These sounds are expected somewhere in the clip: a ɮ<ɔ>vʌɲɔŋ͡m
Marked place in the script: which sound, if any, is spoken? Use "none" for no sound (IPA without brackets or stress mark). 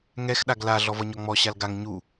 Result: ɔ